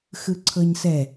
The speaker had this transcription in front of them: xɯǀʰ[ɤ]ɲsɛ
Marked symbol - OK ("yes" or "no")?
yes